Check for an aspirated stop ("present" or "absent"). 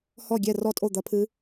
present